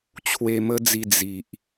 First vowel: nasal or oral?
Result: oral